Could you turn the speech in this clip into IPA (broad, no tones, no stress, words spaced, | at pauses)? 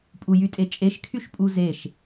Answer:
pʼujytʼet͡ʃʼeʃ kʰyʃpʼuzeʃ